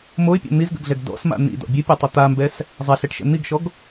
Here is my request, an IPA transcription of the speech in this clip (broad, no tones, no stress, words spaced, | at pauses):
moɪ̯pʲɔ̰ n̪izɡə̰ɡɮɛɡ dɔ̰sma̰ n̪ḭdɔ̰ bʲɨpʲatˤi t̪ambɛs | zˤaɬɛʈʃɛ̰ n̪iɡʃɔɡ